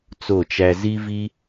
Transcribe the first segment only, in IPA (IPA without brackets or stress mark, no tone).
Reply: t͡s